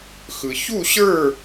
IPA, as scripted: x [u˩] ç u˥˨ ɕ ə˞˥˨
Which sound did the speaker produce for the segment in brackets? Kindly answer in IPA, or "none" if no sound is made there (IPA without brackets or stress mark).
ɯ˩